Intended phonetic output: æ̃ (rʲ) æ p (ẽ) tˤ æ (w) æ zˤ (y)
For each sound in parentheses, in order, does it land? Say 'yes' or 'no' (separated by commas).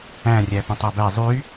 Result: yes, yes, no, yes